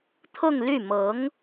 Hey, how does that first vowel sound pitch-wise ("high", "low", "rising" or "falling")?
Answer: falling